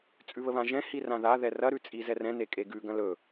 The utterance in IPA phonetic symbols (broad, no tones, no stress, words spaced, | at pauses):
t͡sʼʉβəβãʒɛ̃ hirãða ðɛrɐ ɾʉt͡sʼizɛrɛ̃ nekʼeɡʉ ɡɐ̃lɵ